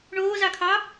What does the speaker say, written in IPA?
ɳ oː z ɑ kʰ ɑ

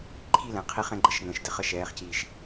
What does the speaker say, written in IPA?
ǃʰ i˥˩ l ɛ̃˩˧ qʰ i˧˩˧ χ ɛ̃˧ ɡ͡ǃ ə˧˩˧ ʃ ŋ ə̃ː˩ ʃ d ɘ˩˧ χ ə˥˩ ʃ ɛː˩˧ χ c iː˩ ʃ

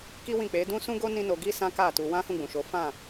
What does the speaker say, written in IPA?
k i˦ w ĩ˦˨ k͡p e˨˦ d ũ˦ s ũ˦ ɡ o˦ n ĩ˦ n o˧ ɡ i˦ s ã˦ k a˦˨ t u˧ w ã˦ h ũ˦˨ ɡ͡b ũ˨ ʃ o˨˦ f ã˦˨

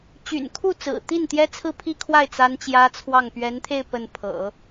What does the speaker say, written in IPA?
t͡ɕ y̰˨˩ n kʰ u˥˩ t͡s ɹ̩˨˩ t̪ i˥˩ n t̪ j ɛ˥ t͡sʰ ɹ̩˥˧ pʰ i˥˧ kʰ w a˥˩ ɪ̯ t͡s a˥ n t͡ɕ j ä˥ t͡sʰ w ɑ˥˩ ŋ p ɥ ɛ˧˥ n t̪ʰ e˥˧ ɪ̯ p ə˥˩ n pʰ ɤ̰˨˩˦

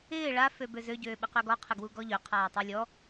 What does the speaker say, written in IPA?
ɪː ɭ a f ø b ø z ø ɟ øː ɓ ɪ q ø ɡ ɔ qʰ ɪ ɡ w u ɡ ɔ ʎ ø qʰ aː tˤ ø lʲ ɔ

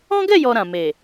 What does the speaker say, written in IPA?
ɔ̃˦ ɡ ɛ˦˨ j ɔ˨ ɾ ã˨ m e˨

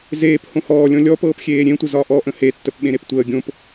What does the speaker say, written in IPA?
z eː p h õ h ɔː lʲ ɔ̃ lʲ ɔ p ɤː p xʲ eː ɾʲ ẽ tʷ ə z ɒ ʔ ɔ ʔ ə̃ h e tː ə p ɓ ẽ ɾ e p tʷ əː ɡʲ õ p

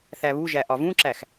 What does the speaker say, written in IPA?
θ æ β u ʒ æ ʔ ɒ v ũ ǁ æ x

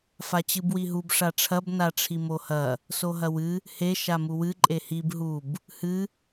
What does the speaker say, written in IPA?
f a t͡ɕ ɨ b w i ɦ u b ʂ a ʈ͡ʂʰ ɐ b n a ʈ͡ʂʰ i m o h ɐ | s o ɦ ɐ w ɨ | h e ʃ a m u w ɨ ǃʼ e h i b ɦ u b | h ɨ

